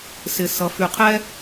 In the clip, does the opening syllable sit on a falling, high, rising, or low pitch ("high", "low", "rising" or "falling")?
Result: low